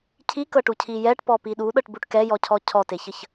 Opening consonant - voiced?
no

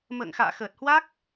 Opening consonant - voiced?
yes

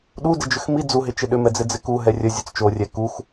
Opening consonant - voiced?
yes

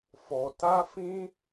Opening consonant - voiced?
no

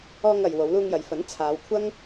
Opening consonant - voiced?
yes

